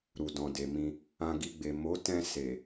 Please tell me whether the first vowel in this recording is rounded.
yes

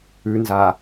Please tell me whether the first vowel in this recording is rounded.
yes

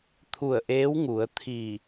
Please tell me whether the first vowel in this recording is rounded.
yes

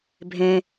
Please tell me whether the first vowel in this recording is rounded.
no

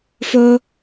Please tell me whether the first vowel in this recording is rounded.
yes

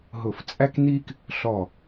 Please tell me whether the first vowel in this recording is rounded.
yes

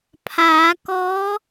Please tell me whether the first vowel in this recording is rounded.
no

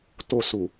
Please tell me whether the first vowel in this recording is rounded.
yes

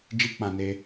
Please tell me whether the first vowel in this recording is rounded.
no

